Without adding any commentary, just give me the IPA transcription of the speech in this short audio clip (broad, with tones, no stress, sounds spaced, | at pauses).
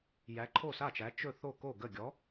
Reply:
j æ˨˥ ǃʰ o˥˩ s a˥˩ t͡ʃ æ˨˥ t͡ʃ ɵ˥˩ θ o˥˩ k o˥˩ ɡ ə˥˩ ɡʲ ɔ˨˥